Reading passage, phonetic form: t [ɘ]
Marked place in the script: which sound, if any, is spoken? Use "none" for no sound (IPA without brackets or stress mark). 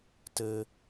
ɘ